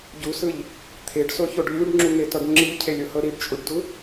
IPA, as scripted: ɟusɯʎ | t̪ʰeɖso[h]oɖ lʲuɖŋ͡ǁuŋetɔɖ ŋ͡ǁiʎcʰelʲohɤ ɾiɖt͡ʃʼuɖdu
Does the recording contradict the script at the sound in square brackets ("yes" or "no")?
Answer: yes